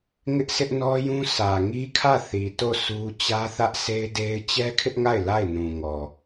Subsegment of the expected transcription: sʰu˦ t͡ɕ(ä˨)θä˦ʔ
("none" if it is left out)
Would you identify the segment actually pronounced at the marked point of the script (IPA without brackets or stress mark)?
ä˦